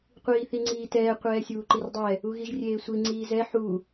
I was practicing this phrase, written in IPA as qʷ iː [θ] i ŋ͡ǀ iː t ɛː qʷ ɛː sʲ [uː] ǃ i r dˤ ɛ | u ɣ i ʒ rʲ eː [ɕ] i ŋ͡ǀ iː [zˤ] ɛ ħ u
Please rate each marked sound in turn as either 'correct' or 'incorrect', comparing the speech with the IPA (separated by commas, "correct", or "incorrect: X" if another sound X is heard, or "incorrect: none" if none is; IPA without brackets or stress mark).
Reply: correct, correct, incorrect: sʷ, incorrect: z